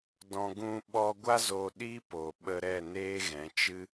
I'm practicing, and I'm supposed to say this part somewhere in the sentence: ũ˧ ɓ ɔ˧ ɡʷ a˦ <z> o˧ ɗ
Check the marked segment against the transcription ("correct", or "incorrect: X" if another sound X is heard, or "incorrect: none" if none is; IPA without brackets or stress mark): correct